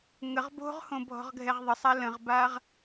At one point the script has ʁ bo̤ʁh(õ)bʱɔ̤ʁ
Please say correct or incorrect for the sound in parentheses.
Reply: correct